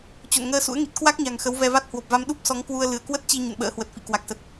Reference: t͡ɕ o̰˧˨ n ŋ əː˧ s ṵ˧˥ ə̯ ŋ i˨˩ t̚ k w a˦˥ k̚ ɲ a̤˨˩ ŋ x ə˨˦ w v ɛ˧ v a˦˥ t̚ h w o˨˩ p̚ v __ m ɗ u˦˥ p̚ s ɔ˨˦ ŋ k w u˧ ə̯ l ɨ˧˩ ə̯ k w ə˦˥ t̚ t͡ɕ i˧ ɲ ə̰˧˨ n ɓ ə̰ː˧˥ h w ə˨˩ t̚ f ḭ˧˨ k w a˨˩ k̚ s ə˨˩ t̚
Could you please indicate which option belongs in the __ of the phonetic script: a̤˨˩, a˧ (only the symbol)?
a˧